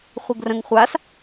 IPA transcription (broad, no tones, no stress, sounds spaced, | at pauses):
χʷ ɘ ɡ r ə̃ ŋ χʷ a s